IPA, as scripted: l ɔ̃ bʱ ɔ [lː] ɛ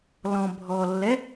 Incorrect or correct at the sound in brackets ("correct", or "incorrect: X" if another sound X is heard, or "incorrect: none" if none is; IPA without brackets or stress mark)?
correct